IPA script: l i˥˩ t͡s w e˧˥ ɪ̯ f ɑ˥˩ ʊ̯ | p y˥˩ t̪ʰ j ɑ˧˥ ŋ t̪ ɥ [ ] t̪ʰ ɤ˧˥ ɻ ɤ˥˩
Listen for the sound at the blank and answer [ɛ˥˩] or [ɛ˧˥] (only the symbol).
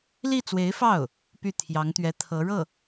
ɛ˧˥